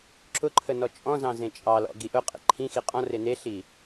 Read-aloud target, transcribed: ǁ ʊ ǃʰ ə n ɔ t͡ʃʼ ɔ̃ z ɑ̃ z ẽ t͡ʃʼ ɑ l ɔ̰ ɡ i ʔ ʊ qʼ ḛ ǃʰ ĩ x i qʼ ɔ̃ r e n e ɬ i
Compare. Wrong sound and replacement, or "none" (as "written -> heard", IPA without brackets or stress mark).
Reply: none